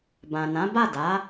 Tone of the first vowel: low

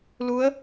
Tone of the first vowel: rising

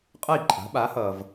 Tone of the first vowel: falling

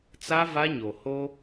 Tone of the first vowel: high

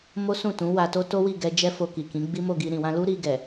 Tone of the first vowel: high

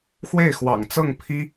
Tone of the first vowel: falling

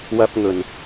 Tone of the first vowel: high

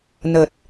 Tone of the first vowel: low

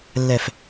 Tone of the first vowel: low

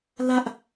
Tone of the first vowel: high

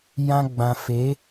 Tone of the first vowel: high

